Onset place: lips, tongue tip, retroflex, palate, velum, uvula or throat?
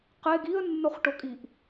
uvula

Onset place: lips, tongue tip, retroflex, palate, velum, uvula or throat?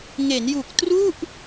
velum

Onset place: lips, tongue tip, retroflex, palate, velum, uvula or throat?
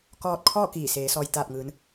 velum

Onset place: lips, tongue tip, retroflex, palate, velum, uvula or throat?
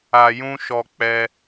palate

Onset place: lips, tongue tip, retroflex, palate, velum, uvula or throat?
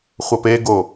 uvula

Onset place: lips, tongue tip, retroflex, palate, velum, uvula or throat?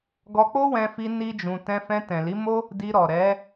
velum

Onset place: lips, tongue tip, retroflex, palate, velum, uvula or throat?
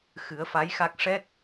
velum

